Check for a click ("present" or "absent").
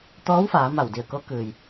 absent